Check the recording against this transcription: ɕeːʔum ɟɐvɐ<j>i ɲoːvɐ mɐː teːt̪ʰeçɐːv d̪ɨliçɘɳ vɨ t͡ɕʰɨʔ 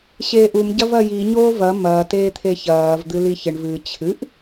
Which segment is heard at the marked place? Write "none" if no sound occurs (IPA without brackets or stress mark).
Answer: j